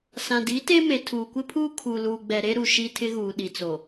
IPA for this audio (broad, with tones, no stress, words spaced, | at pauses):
sã˨di˨˦te˦ me˨tʰuː˨kʷɪ˦pʰuː˦ kʰu˨luː˨ɡ͡bɛ˨ɾe˦ ɾu˨ ʃi˦tʰɪ˦ɣuː˨ ɗi˨t͡so˨